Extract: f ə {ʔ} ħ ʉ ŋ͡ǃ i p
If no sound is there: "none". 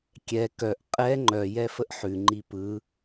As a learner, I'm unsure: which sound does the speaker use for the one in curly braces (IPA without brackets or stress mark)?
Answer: ʔ